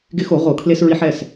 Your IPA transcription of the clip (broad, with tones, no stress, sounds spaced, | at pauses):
ɡ ɪ˧ x o˧˩˧ ʁ o˧˩˧ kʰ l e˧ s ɹ i˧ ħ ɛ˩˧˩ s